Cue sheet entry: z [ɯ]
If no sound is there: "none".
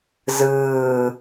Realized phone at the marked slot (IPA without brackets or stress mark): ɯː